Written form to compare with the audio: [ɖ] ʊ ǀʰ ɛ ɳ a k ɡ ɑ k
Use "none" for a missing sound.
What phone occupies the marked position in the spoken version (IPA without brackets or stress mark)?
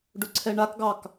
ɖ